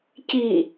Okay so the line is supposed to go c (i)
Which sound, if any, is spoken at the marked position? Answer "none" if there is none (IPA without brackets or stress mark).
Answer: i